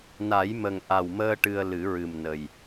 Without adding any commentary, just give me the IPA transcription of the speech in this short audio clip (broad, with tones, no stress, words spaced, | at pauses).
na˨˩˦j mə˨˩ŋʔa˨˩wməː˧ ʈɨ˧ə̯ lɨ˨˩˦ɹɨ˨˩mnə˨˩j